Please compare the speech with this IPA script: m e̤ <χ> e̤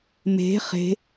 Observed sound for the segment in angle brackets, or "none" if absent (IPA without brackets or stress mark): χ